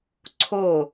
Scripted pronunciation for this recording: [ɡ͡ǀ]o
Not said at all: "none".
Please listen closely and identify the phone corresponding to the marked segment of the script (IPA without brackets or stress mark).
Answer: ǀʰ